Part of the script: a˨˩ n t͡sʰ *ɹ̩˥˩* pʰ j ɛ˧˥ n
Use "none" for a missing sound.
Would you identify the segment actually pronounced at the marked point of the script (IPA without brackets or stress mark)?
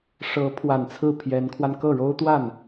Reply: ɹ̩˥˩